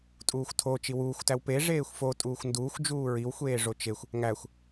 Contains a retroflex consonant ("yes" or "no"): yes